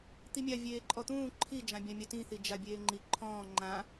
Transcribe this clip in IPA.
t̪ i mʲ a vʲ eː ǃʼ ɔ t̪ ũː ǃʰ i d͡ʒ ã bʲ ã mʲ a t ĩ θ i d͡ʒ a bʲ eː ŋ͡ǃ i ǃʰ ɔ̃ː ŋ͡ǃ ã

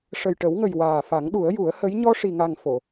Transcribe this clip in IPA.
ʂ ə˨˩ j ʈ ə˨˩˦ w ŋ ə˨˩ j w aː˨˩ f a˨˩˦ ŋ ɗ u˨˩˦ ə̯ j u˨˩˦ ə̯ h ə˧˥ j ɲ ɔ˧ ʂ i˨˩ ŋ a˨˩ ŋ f o˨˩˨

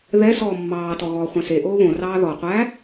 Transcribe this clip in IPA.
ð ɛ s ɔː mː ɑː t ɔ ɣ ɔː χʷ ɛ̃ s e ʔ oː β õ r ɑː ð ɔ qʷ æː

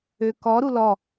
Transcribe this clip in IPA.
ø k ɔ ɾ u l ɔ

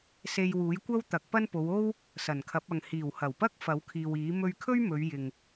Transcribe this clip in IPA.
s e˧ j w uː˨˥ j kʷ ɐ˥ w t̪ ɐ˨˥ k̚ p ɐ˥ n p o˨˧ w o˥ w | s ɐ˨˩ n kʰ ɐ˨˥ p̚ ɐ˨ ŋ h iː˨˩ w h ɐ˨˩ w p ɐ˥ k̚ f ɐ˨˥ w kʰ iː˨ w iː˨˥ m ɵ˧ ɥ kʰ ɵ˥ ɥ m ɵ˨˧ ɥ j ɪ˨ ŋ

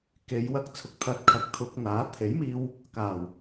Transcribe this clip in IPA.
k e˨˧ j w ɐ˧ k̚ t͡sʰ ʊ˨ k̚ t̪ʰ ɐ˨˥ t̚ kʰ ɐ˨ k̚ t̪ʰ ʊ˧ k̚ n̪ aː˨˥ t̪ʰ e˨˥ j m iː˧ w | k aː˨˩ w

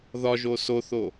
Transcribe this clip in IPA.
ð ɒ ʒ o s o θ o

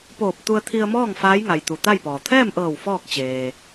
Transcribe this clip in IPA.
p oː˧˩ p̚ t̪ u˧ ə̯ t̪ʰ i˧ ə̯ m ɔː˥˨ ŋ f aː˧˥ j ŋ a˩ j t̪ u˩ t̪ a˥˨ j p ɔː˩ t̪ʰ ɛː˥˨ m ʔ ɤː˧˩ w f ɔː˥˨ k̚ t͡ɕ eː˩

